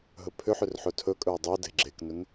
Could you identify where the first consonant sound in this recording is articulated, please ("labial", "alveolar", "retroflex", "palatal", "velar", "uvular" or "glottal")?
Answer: glottal